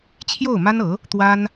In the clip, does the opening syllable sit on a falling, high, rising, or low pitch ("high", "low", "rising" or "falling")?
falling